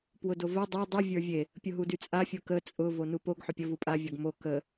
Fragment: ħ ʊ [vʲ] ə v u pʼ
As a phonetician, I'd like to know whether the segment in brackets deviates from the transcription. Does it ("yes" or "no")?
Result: yes